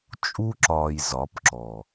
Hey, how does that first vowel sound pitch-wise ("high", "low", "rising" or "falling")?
high